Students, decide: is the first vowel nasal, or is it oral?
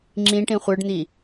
nasal